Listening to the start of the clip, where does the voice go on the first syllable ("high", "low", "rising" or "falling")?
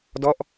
falling